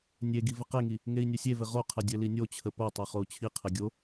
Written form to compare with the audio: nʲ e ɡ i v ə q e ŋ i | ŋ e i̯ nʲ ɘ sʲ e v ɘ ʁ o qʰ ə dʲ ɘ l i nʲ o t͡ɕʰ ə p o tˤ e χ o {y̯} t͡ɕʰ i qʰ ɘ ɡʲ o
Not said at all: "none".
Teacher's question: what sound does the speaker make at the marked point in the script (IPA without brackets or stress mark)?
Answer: u̯